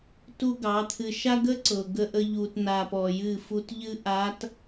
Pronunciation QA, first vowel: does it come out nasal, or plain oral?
oral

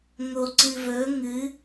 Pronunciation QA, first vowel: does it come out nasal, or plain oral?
oral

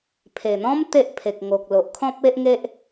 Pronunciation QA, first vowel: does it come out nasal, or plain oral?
oral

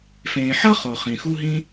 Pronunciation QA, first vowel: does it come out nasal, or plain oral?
nasal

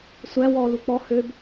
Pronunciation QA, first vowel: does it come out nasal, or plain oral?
oral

